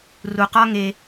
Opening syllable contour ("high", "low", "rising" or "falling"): low